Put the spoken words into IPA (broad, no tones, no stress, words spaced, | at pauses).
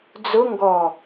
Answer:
d͡zʊ ŋɡɔ